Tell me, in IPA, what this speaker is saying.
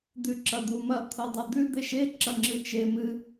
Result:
d̪ ʉ ǁ ɐ d̪ u m ɐ t̪ʰ o dˤ ɵ d̪ ʉ d̪ e ʃ e ǁ ɐ ŋ͡ǁ ɨ t͡ʃ e m ɨ

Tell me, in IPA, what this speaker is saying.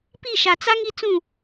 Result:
p i˦˨ ʃ a˨ t͡s a˦ ŋ i˦ t͡s ũ˦˨

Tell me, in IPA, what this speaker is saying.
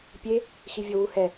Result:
pʲ e | x i vʲ ɤ w u h ɛ

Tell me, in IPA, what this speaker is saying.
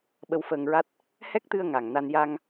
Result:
ɓ ə˧ w f əː˧ ŋ ɹ a˦˥ t̚ | h ɛ˦˥ k̚ t̪ ɨ˧ ə̯ ŋ a˨˩ ŋ n a˧ n j a˧ ŋ

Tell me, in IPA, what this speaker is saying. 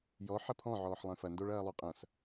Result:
j ɔ ħ ɐ pʰ ɔ̃ ʕ ɔː ħ lˠ ẽ f ɐ n d o ɭ ɐː lˠ ʉ qʼ ɐ̃ s

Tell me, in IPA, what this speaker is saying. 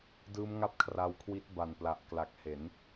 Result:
d ɯː˦˥ m ŋ a˥˩ p̚ kʰ r a˧ w kʰ w i˦˥ t̚ b a˨˩ n p l a˨˩ ʔ k l a˨˩ k̚ h e˩˦ n

